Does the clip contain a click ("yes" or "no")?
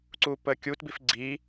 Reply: yes